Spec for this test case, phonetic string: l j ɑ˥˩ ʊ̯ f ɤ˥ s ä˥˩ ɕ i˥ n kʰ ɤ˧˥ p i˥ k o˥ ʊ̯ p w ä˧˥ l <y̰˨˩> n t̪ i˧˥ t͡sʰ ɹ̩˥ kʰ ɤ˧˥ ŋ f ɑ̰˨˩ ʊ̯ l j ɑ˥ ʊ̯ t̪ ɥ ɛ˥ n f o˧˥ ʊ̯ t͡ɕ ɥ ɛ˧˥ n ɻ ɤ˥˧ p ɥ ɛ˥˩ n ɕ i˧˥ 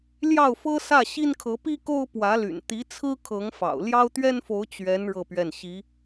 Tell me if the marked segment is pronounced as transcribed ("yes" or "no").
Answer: yes